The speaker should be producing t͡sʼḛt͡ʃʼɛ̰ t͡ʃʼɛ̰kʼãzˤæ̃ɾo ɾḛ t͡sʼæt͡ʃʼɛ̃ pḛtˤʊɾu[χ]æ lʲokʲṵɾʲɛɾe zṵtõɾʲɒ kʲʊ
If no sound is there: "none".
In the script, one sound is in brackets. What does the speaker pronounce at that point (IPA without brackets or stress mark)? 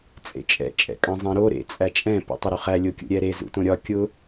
χ